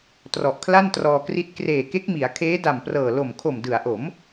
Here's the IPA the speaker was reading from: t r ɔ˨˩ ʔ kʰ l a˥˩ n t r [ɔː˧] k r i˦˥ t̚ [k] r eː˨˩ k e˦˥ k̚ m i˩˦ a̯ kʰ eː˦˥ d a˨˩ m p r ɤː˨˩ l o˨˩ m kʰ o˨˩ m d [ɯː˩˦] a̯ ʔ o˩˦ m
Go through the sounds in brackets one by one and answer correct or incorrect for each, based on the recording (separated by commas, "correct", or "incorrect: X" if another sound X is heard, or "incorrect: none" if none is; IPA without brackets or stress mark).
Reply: correct, correct, incorrect: ɯ˩˦